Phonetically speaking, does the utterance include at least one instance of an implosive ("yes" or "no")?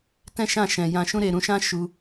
no